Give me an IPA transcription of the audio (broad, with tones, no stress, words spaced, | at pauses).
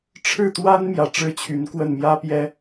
ʈ͡ʂʰɻ̩˥˩t̪wa˥nmjä˨˩ ʈ͡ʂɻ̩˥˩t͡ɕʰy˧˥nkwə˥˩n mjä˥pjɛ˥